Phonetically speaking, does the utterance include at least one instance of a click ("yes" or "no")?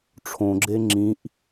yes